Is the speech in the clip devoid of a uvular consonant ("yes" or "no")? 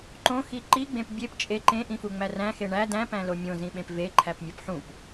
yes